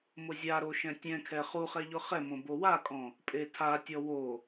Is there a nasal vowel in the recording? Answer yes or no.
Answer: yes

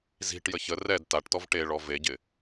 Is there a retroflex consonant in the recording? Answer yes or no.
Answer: yes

